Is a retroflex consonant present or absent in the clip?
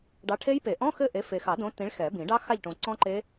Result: present